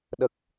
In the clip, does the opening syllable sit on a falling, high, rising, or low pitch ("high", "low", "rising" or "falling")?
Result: low